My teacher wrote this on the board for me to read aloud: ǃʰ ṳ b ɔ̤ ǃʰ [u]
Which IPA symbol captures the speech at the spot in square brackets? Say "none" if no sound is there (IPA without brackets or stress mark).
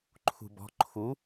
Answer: u